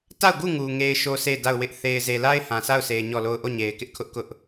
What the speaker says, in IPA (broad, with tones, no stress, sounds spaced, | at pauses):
t a˦˨ ʊ̯ ɡ u˦˨ ŋ u˨ ŋ e˦ ɪ̯ ʃ o˦ s e˦˨ ɪ̯ d a˦˨ ʊ̯ w ɪ˦ ʔ θ e˨ ɪ̯ z e˨ l a˦ ɪ̯ h ã˨ s a˦˨ ʊ̯ sʰ e˨ ɪ̯ ɲ ɔ˦˨ l o˦˨ ʊ̯ ʔ o˦˨ ɲ e˨ ɪ̯ k ɪ˦ ʔ kʰ ʊ˦ ʔ k ʊ˦ ʔ